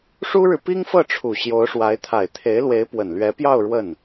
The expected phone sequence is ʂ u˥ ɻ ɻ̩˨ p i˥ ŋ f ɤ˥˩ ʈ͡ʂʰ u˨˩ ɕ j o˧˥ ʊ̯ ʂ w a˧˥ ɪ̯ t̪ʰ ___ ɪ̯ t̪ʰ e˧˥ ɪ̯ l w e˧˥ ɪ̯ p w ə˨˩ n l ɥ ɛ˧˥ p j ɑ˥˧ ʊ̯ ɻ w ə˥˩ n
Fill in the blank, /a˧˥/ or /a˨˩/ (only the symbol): a˨˩